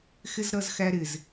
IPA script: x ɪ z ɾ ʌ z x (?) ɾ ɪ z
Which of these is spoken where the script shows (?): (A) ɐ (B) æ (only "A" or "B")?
B